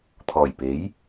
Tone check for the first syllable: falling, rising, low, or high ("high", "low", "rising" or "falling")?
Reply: low